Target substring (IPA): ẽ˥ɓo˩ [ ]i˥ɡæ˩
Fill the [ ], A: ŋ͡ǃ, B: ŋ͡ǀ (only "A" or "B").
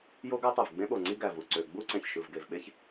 B